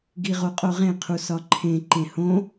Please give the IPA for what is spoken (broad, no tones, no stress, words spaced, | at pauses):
ɡiʁoqʼoʁẽ qʰusɒǃʰẽ ǃẽhõ